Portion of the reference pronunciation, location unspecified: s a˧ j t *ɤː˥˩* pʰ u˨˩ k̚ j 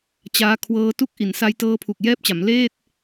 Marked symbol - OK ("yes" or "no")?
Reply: no